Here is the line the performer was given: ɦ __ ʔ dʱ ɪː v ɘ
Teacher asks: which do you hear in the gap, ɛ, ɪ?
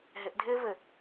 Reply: ɪ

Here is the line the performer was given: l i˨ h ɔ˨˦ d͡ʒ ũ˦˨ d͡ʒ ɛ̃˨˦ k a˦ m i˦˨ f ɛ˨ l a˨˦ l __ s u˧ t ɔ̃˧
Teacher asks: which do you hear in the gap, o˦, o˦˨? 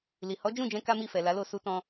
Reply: o˦˨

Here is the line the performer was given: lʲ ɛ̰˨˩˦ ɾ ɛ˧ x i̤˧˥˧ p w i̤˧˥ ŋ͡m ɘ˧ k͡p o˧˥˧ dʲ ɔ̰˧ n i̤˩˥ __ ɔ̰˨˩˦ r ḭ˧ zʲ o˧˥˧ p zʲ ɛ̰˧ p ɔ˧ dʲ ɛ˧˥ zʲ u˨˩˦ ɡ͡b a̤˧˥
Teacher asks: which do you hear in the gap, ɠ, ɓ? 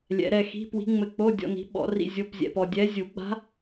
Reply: ɓ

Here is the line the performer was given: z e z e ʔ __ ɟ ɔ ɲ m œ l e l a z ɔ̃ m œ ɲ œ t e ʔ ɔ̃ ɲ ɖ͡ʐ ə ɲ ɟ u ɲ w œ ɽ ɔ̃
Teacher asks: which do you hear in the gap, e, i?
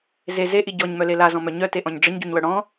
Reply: i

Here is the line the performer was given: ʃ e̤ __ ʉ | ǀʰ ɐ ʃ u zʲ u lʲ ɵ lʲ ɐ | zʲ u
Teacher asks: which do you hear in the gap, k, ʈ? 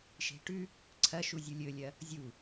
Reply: ʈ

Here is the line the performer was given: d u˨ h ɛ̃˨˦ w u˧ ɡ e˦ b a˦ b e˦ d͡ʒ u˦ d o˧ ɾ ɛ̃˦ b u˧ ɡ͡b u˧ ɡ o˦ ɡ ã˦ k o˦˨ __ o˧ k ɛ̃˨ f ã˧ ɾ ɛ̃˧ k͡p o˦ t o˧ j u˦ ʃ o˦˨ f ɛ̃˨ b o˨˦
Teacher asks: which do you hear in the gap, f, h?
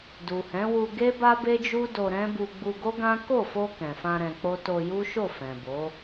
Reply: f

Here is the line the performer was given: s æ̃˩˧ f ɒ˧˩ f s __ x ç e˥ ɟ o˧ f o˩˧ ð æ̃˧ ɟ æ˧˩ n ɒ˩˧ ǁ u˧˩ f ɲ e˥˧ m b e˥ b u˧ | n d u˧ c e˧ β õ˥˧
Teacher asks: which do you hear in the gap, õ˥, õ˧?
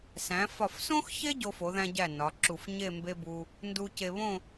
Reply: õ˥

